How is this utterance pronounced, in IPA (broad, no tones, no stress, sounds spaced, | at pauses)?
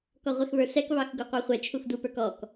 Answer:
k ɔ ʁʷ ɛ x β ə˞ s ɛ k β ɑ x ɡ u qʷ ɑ χʷ ɛ t͡ʃʰ u x d u p ə˞ k ɔ k